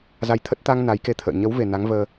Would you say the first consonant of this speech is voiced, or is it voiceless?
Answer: voiced